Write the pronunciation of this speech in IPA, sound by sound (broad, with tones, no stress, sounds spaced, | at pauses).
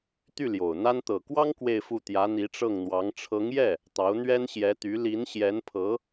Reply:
t̪ y˥˩ l j o˨˩ ʊ̯ n̪ a˥ n t̪ ɤ˨˩ k w ɑ˥ ŋ k w e˥˧ ɪ̯ f u˥˩ t̪ j ä˧˥ n̪ i˧˥ ʈ͡ʂ ɤ˥˩ ŋ n̪ w ɑ˧˥ ŋ ʈ͡ʂʰ ɤ˧˥ ŋ j ɛ˥˩ | t̪ ɑ˧˥ ʊ̯ n̪ ɥ ɛ˥ n ɕ j ɛ˧˥ t̪ y˧˥ l i˧˥ n ɕ j ɛ˧˥ n pʰ ɤ˧˥